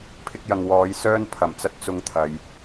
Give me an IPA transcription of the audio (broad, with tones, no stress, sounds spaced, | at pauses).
pʰ ɪ˧ k̚ j ɐ˨ ŋ w ɔː˨˧ j s œː˥ n pʰ ɐ˨˩ m t͡s ɐ˧ t̚ t͡s ʊ˧ ŋ t̪ʰ ɐ˨ j